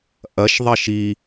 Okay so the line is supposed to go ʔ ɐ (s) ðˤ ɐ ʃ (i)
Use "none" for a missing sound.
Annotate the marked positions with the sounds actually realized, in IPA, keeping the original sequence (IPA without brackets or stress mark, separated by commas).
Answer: ʃ, i